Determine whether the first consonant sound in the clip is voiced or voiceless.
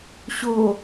voiceless